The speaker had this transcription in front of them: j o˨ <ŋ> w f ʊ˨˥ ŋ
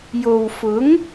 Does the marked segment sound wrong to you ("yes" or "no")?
yes